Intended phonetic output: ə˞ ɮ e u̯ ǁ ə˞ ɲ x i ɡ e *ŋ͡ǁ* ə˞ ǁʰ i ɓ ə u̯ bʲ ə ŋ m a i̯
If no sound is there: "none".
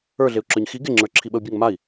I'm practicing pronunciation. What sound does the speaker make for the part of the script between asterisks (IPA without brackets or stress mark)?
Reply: ŋ͡ǁ